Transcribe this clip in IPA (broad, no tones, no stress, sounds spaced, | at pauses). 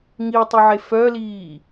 ŋ i tˤ ʊ ʕ e f œ l iː